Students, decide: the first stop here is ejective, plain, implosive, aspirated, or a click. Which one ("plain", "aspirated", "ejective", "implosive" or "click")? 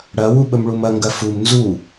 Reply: implosive